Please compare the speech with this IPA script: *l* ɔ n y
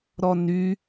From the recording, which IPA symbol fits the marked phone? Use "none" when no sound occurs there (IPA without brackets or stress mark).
ɾ